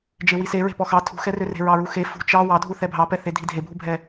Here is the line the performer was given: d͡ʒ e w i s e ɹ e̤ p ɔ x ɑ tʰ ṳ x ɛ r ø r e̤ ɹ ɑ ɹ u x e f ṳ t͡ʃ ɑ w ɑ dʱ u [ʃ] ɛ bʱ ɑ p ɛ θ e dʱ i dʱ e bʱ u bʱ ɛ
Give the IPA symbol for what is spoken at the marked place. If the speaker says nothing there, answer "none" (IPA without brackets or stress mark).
θ